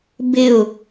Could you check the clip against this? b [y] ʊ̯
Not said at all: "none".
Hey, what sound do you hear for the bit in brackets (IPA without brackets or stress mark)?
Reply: ɪ